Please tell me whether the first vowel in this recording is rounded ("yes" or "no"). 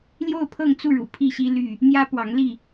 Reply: yes